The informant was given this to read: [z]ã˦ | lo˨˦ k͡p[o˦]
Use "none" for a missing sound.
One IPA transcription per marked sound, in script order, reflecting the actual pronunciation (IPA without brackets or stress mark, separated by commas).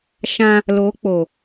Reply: ʃ, o˨